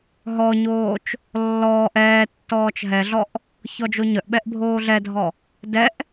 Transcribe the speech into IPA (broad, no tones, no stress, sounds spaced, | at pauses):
ɦ ɔ ɲ oː t͡ʃ | lː ɔː ʔ ɛː tː ɔː t͡ʃ ɦ ɛ ɮ ɔ ʔ | ç ɔ d͡ʒ o ɲ œ ʔ ɓ ɛ ʔ bʱ oː ɮ ɛ dʱ ɔ | d ɛ ʔ